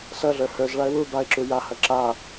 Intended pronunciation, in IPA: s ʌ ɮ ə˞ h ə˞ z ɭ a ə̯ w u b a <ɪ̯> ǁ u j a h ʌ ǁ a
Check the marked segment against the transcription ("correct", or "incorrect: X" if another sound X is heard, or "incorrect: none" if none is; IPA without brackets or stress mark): correct